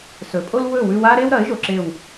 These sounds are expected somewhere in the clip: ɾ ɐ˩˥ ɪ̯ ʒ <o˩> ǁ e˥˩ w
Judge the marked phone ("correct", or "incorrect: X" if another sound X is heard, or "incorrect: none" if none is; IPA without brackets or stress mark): correct